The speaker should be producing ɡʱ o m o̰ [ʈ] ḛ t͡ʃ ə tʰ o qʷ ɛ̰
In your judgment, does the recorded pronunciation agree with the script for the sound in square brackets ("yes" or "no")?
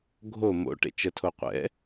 yes